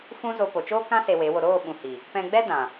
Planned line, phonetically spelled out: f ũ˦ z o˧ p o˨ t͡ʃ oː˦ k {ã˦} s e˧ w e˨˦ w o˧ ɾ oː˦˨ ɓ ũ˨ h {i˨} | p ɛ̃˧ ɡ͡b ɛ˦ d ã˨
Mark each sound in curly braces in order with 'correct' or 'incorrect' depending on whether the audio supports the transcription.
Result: correct, correct

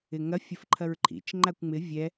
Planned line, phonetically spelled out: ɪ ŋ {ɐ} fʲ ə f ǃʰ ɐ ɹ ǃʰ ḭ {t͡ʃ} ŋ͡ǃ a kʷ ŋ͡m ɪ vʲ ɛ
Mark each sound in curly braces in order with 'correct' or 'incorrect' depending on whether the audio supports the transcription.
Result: correct, correct

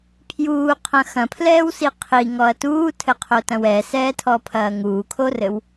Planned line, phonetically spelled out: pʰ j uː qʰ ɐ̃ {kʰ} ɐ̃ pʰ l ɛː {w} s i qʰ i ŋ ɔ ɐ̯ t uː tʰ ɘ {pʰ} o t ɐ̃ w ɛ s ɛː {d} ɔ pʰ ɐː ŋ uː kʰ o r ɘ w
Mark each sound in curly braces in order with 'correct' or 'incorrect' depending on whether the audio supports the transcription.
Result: incorrect, correct, incorrect, incorrect

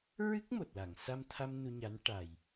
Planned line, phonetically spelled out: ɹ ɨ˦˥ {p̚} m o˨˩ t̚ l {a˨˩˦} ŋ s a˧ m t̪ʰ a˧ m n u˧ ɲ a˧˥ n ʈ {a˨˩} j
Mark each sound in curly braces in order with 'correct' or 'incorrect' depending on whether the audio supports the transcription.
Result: incorrect, incorrect, correct

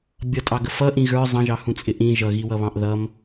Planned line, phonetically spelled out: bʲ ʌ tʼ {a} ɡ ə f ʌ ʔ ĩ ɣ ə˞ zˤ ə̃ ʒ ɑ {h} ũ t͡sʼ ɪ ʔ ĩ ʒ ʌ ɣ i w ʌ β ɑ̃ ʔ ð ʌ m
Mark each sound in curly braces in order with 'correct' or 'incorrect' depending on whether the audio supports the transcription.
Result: incorrect, correct

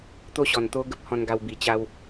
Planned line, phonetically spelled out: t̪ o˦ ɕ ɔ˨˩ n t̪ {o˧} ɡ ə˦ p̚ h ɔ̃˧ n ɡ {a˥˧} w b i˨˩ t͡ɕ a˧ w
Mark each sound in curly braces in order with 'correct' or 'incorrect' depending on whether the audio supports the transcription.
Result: incorrect, incorrect

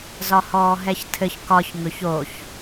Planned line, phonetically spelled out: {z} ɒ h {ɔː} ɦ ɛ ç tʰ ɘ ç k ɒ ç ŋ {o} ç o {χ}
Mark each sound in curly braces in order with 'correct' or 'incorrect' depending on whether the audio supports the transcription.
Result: correct, correct, incorrect, incorrect

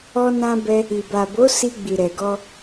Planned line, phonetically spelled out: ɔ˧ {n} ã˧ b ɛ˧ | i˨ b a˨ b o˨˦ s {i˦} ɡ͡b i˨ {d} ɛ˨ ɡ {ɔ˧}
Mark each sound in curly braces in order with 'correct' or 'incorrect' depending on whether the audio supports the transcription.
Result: correct, incorrect, incorrect, correct

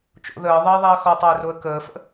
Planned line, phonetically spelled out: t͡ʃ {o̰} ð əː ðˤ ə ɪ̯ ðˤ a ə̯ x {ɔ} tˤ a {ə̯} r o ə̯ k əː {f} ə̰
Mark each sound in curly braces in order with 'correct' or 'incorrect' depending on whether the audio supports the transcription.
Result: correct, correct, correct, correct

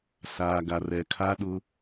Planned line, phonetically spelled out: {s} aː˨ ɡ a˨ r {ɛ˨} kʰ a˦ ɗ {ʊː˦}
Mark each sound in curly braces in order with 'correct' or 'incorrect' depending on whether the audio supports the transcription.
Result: correct, correct, incorrect

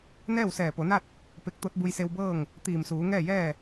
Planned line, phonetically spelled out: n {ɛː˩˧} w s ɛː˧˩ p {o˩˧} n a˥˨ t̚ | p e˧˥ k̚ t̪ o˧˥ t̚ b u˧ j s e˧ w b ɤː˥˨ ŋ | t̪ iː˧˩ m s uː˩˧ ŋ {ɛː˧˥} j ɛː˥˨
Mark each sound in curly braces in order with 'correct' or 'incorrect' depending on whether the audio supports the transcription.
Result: incorrect, correct, incorrect

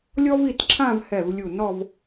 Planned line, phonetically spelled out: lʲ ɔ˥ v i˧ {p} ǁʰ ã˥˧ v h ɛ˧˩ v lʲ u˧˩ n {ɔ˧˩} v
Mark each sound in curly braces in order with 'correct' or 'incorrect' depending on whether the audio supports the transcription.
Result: incorrect, incorrect

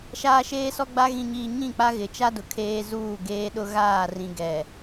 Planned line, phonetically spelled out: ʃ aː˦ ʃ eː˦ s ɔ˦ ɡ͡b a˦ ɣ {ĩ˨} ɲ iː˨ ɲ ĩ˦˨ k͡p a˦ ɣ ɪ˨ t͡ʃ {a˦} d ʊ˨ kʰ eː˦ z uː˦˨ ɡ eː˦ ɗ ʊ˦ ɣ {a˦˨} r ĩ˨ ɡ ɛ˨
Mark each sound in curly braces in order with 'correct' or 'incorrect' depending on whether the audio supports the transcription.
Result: correct, correct, incorrect

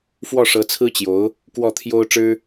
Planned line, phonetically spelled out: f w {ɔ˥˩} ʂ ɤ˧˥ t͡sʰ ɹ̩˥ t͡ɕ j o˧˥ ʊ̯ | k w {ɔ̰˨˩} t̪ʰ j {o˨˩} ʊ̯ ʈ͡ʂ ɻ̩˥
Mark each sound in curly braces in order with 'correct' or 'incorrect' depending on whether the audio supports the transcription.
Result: correct, incorrect, incorrect

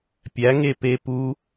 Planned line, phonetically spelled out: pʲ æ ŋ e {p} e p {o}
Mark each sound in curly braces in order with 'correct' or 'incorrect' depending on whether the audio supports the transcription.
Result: correct, incorrect

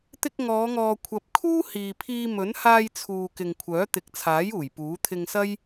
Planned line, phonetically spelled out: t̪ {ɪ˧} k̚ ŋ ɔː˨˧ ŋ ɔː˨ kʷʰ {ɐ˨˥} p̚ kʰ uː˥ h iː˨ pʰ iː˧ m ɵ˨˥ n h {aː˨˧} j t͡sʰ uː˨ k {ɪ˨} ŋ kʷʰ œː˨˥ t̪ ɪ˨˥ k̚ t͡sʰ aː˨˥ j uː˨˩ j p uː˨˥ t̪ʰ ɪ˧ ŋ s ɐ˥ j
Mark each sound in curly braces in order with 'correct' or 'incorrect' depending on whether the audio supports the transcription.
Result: correct, correct, incorrect, correct

